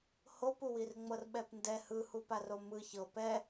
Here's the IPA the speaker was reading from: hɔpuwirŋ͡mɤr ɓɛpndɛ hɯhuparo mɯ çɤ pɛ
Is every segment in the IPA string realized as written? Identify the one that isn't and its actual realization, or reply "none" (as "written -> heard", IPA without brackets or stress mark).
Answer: ɔ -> o